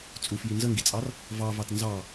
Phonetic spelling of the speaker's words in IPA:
t͡sʼ u f j i n z ə ŋ ɡ i t͡sʼ ɑ r | v ɑ v ɑ t n z ɑ

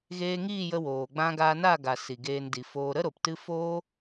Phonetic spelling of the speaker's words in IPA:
ɣ eː˧ ŋ iː˦˨ j ə˧ w oː˨ ɡ͡b ã˧ ɡ aː˧ n a˦˨ ɡ a˨ s i˨ ɡ eː˧ n d i˨ f oː˧ ɾ ə˦ ɾ o˨ p t ɨ˦ f oː˦

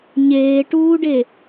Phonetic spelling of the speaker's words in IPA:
ɲ eː ʈ uː ɖ e

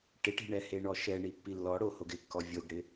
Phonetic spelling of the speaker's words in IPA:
ʈ ɪ ʈ i̤ ɳ ɛ h e ɳ ɔ ʃ ɛ ɳ i pː i lː ɔ ɽ o h o ɡ ɪ kː ɔ vʲ o ɡ ɽ ɪ

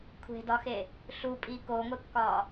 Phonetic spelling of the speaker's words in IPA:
kʷʰ e̤ d ɒ x e | ɬ u pʼ i k o ŋʷ e kː ɒ

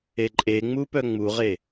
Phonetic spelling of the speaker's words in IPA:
e ǃʼ e ŋ͡m u p œ ŋ͡m u ʁ e

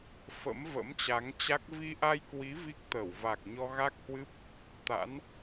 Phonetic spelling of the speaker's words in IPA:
f ə̰˧˥ m v ə̰˧˥ m t͡ɕ a˨˦ ŋ t͡ɕ a˦˥ k̚ v i˧ ʔ a˧ j k w i˨˦ v i˦˥ k̚ t̪ ə˧˩ w v a˨˩ k̚ ɲ ɔ˧ ɣ a˦˥ k̚ h w ɨ˦˥ p̚ | t̪ a̰˧˥ n

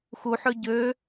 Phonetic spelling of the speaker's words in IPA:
x u ħ ø ɟ ø

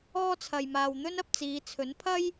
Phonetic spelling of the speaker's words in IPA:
ɔː˥ t͡sʰ ɐ˧ j m aː˧ w n̪ ɵ˥ n ɐ˧ p̚ t͡s iː˨˧ t͡sʰ ɵ˨˥ n pʰ ɐ˥ j

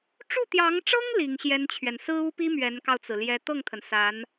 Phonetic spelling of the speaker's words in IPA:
ʈ͡ʂ u˥˩ t̪ j ɑ˧˥ ŋ ʈ͡ʂ ɤ˥ ŋ l i˧˥ ŋ ɕ j ɛ˥ n t͡ɕʰ ɥ ɛ˨ n s ɹ̩˥ u˥ p i˥ m ɥ ɛ˧˥ n k ɑ˧ ʊ̯ t͡s ɹ̩˩ l j ɛ˧˥ t̪ ɤ˥˩ ŋ t̪ʰ ə˩ n s a˧˥ n

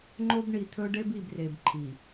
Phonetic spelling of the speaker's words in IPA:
ŋ͡ǃ o˦ b ɳ i˨ t̪ʰ ɵ˦ ɖ e˦ b i˨ b r e˨ b ǃʰ i˨

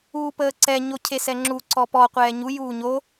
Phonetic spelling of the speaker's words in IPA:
uː p əː ǀ ɛ ɲ o cʰ e s ɛ ŋ͡ǁ u ǀ ɔ p ɔ qʷ ɛː ɲ u j uː ɲ o

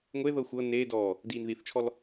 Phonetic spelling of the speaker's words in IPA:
ŋʷ e ð ɤ xʷ ɤ n eː d ɔː | d iː n ð i θ t͡ʃʰ ɔ l

